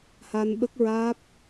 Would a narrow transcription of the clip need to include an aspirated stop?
no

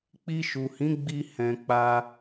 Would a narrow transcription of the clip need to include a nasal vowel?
yes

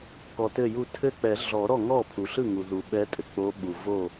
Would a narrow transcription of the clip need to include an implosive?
yes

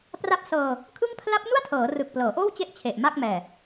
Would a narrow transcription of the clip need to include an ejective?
no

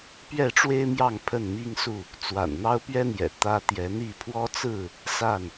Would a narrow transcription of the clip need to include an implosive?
no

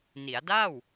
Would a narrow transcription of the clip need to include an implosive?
no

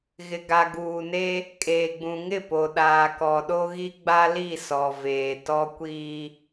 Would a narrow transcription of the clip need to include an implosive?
yes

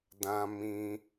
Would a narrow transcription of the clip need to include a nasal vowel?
yes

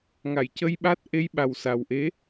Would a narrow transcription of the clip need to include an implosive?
yes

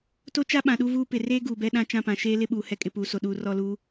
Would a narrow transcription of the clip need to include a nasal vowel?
yes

